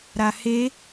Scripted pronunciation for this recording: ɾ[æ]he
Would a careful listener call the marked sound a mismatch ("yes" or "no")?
yes